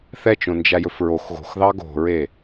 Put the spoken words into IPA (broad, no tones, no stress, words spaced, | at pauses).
θɛt͡ʃõnd͡ʒæjɵf ɹox ɣo̤xðɑ ɡo̤ɹe